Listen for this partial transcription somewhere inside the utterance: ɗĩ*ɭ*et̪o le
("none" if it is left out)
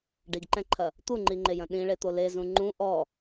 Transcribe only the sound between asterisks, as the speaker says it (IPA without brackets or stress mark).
ɭ